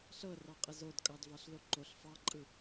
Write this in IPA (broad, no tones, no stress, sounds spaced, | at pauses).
ɬ ɤ r ɑ qʼ ə z o d kʼ ɑ d v ɑ ɬ l o ǃ o ɬ f ɑ ǃʼ ɯ